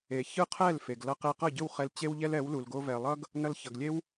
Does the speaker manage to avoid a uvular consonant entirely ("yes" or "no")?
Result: no